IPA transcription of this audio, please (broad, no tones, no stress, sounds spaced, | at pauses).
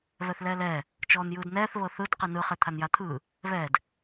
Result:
β ɛ θ l ɛː l ɛː | t͡ʃ ɔː n j ɯː d n ɛː θ β ɤ θ ɯ d q i n ɯ χ e t̪ʰ a n j a t̪ʰ ɯː | β ɛː d